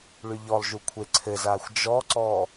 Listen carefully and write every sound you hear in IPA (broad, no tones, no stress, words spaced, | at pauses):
ɭyʎɔlˠʒu kʷʰeǀʰɘzaːxʷ d͡ʒɔǀɔː